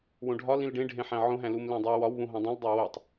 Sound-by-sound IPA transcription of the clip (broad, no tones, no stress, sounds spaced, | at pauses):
w õ ɖʱ ɒ l ĩ l ɖ ẽ ɖʱ ẽ ħ æ̃ ʕ õ ɦ æ̃ l u m l ẽ dˤ i w ɒ w β ũ ɦ õ dˤ ĩ l dˤ o w o tˤ